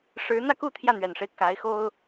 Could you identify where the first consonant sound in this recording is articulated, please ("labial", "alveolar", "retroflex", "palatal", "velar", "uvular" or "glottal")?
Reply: retroflex